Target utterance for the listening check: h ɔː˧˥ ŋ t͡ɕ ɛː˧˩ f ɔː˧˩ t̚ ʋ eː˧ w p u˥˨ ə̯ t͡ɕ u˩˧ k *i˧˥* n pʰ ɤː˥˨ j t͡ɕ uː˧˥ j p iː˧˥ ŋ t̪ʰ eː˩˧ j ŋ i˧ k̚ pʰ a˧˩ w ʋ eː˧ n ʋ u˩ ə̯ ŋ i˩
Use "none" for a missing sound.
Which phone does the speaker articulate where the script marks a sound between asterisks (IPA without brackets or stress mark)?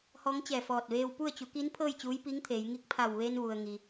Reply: i˧˥